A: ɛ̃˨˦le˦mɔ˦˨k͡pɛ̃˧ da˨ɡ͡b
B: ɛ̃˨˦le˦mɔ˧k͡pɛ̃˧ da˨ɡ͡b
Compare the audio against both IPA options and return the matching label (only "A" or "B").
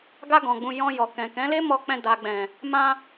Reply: B